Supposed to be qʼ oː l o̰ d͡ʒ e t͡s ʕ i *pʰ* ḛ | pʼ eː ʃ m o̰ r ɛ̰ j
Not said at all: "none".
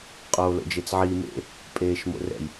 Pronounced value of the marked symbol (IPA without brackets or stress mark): m